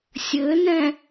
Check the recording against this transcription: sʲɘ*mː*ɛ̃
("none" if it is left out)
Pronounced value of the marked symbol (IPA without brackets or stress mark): n